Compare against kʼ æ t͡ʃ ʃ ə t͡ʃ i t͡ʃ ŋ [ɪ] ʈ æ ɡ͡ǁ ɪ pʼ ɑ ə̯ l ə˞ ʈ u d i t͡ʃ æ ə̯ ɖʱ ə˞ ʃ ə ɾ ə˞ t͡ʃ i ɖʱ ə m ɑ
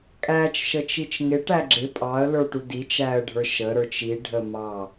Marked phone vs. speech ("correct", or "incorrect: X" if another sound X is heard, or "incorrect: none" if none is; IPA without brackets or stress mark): correct